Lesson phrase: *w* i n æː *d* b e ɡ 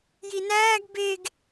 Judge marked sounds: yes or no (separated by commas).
no, no